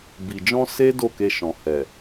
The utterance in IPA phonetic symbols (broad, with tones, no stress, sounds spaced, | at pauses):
b i˨ d͡ʒ ɔ̃˧ s e˦ d o˦˨ k e˧ ʃ ɔ̃˨ h ɛ˨